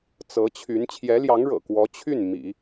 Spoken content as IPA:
t͡s ɤ˧˥ t͡ɕʰ y˧˥ n t͡ɕʰ j ɛ˧˥ l j ɑ˧˥ ŋ ɻ ɤ̰˨˩ k w ɔ˧˥ t͡ɕʰ y˥˩ n m ḭ˨˩˦

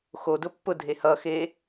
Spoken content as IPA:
x o d ʊ pː ʊ dʱ e h ʌ x e

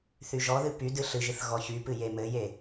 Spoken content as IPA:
θ y ʒ ɔ ð ɨ p y d ɨ ɬ ɨ ʒ ɨ θ ɣ ɔ ç y p ɨ j e m ɘ j e

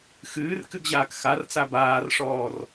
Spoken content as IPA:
x ɨː r k ɨ ɡ ʑ aː k x a r t͡s a b aː r ʂ ɔː r

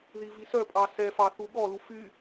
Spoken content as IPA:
ð i v i s œ pʼ ɑ s ɛ f ɑ θ u ɠ ɔ l u f y

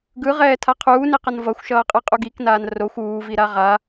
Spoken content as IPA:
ɡ ɯ ʁ ɛː tʰ a qʰ uː n e q ʌ n v ʌ xʷ ʃ ʌː qʼ ɯ qʼ u ɡ i k n aː n r o xʷ uː v i ɾ a ʁ a

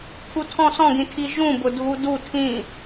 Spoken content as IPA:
kʰ u tʰ ɔ̃ s ɔ̃ ɡ ĩ tʰ i ʒ ũ b ʊ dʱ u d u tʰ ĩ

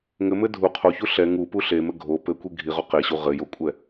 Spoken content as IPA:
ŋ ɘ m ɘ dʱ u qʰ o ç u ɬ ɛ ŋ u p u ɬ e m ɘ ɡʱ o p ɘ kʷ i ɡʱ i ʁ o q e ɕ u ʁ ɘ j o kʷʼ ɛ

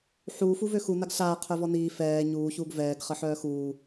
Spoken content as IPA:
ħ u f u v ø x u n a ɡ ɬ aː qʰ œ v ɔ n iː f ɛː ɲ uː ç uː ɡ v ɛː ɡ χ ə ħ œː x uː

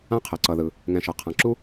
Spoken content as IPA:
ã˥ qʰ ɛ˩ ǀ ʌ˨ ð ɯ˨ | ŋ ɛ̃˨ ʃ ʌ˩ qʰ ã˨ ǁ u˥

